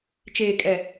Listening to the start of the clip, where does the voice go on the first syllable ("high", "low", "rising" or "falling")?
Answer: low